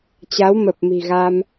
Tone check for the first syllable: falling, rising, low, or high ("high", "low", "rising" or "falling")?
rising